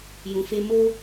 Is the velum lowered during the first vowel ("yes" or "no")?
yes